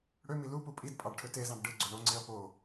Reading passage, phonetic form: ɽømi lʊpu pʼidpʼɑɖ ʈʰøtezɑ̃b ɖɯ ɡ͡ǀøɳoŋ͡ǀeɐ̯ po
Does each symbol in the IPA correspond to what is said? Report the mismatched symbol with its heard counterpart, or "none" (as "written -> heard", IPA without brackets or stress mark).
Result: ʊ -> u